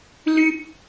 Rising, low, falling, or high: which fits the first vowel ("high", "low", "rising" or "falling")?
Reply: high